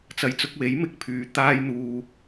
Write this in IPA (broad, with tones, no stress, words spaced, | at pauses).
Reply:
t͡sɐ˨˧jt͡sʊ˧k̚we˨˥j mɪ˧k̚pʰyː˨ t̪aː˧jn̪uː˨